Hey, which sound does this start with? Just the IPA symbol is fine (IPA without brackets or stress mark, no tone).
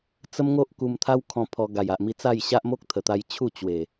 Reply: t͡s